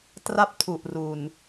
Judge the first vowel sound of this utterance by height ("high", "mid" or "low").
low